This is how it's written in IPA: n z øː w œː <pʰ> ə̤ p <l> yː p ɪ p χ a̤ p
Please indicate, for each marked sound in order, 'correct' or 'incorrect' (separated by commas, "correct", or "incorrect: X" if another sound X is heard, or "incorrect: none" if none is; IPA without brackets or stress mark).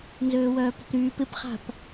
incorrect: p, incorrect: ɾ